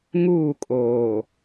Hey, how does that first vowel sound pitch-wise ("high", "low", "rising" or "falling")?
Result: falling